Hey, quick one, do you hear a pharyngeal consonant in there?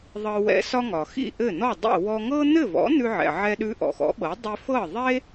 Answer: yes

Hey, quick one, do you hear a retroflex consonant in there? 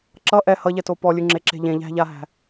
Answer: no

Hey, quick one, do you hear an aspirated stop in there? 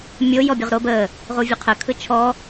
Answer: yes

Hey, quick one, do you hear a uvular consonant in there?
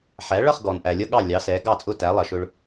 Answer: yes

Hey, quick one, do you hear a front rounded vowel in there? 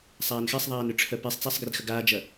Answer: yes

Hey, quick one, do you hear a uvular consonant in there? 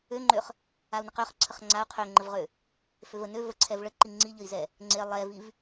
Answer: yes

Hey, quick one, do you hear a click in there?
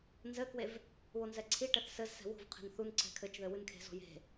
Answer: yes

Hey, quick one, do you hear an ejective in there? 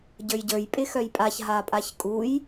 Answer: yes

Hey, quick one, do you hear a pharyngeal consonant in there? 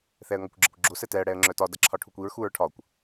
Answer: no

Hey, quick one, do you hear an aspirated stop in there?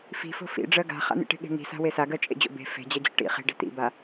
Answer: no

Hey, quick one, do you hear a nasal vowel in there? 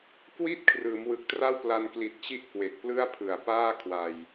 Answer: no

